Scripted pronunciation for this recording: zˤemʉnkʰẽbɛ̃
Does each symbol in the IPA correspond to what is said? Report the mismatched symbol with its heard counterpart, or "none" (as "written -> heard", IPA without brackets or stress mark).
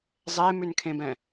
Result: none